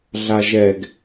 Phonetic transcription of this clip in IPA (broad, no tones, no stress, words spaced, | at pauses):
ɮaʒɛɡ